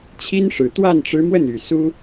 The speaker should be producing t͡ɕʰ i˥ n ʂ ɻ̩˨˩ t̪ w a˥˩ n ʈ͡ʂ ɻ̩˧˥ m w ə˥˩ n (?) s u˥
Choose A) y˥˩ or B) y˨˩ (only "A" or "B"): B